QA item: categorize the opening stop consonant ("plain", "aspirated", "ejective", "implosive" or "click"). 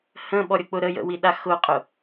implosive